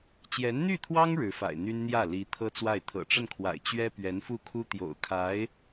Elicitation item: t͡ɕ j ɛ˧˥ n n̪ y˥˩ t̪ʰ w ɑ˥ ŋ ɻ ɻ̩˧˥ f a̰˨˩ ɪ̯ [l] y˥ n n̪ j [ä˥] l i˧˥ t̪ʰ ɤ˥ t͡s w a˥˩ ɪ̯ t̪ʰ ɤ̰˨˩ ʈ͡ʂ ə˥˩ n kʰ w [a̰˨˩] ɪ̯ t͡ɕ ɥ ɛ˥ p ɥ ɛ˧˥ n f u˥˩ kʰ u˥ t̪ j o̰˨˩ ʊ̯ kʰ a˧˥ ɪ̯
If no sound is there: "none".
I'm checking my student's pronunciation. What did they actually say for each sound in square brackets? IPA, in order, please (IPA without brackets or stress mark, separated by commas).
n̪, ä˥˩, a̰˨˩